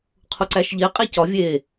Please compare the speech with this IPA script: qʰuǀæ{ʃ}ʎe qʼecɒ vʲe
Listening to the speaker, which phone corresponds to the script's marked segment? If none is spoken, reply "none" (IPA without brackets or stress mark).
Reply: ʃ